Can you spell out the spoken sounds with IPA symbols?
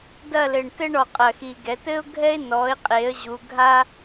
d ɐ˦˨ l ɘ˨˩ ɳ t ɘ˥ ɳ ɔ˨˩ qʼ ɐ˨˩ x i˨˩ ɡ ɛ˩˧ t ɘ˥ ʊ̯ ɡʱ ɛ˥ ɪ̯ n ɔ˩˥ ɪ̯ qʼ e˩˥ ə̯ ʑ u˩˧ ɡʱ a˥

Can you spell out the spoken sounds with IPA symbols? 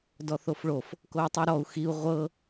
d ɔ θ o f ɭ o f | k o u̯ tˤ i ɾ ɔ u̯ x i u̯ ʁʷ ɤ

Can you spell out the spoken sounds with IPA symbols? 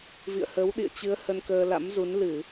v ḭ˧˨ ə̯ h ə˨˦ w ɗ ḭ˧˨ ə̯ t͡ɕ ɨ˨˦ ə̯ h ə˧ n k əː˧ l a̰˧˥ m z u˨˦ n l ɨ˧˩˨

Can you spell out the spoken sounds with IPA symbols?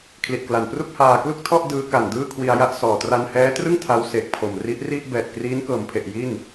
kʰ l i˨˩ t̚ k l a˨˩ n p r u˥˩ k̚ h aː˧ k l u˥˩ k̚ tʰ ɔ˥˩ ʔ d ɯː˦˥ k a˨˩ n d ɯː˥˩ kʰ w i˧ a̯ j a˥˩ ʔ s ɔː˨˩ t r a˧ n h ɛː˦˥ t r ɯ˥˩ ŋ tʰ a˦˥ w s e˨˩ k̚ pʰ o˨˩ m r i˦˥ ʔ r i˥˩ ʔ b ɛː˨˩ t̚ k r iː˦˥ n k ɤː˨˩ m pʰ e˨˩ ʔ j i˥˩ n

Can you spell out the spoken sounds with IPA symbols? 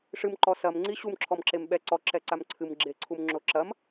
ʂ ɨ m ǃ ɔ s ɐ m ŋ͡ǀ i ɕ u m ǁʰ ɔ m ǁ e m ɓ ɛ ǀ ɔ ǁ ɛ ǀ a m ǀʰ ɨ m ɡ͡ǁ e ǀʰ u m ŋ͡ǁ o ǁ ɐ m

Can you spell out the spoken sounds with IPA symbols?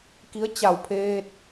k i˧˥ ə̯ t͡ɕ a˧˩ w pʰ eː˧ t̚

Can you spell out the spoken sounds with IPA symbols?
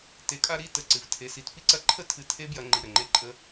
t e˨˦ kʼ a˧ ɾ i˦˨ t ə˦˨ ǀ ɨ˧ v tʰ e˧ s i˧ t p i˦ ǀ ɐ˧ ǃʰ ə˦ tʰ ɨ˧ tʰ e˦ b j ɐ˧ ŋ͡ǃ i˧ ɾ ə˨ ŋ͡ǃ e˦ ǃʼ ə˦

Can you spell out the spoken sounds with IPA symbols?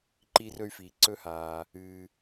ǃ iː˧ r ɵ˧ y̯ f iː˩ ǀ ɵ˧ h aː˩ | ɨː˩

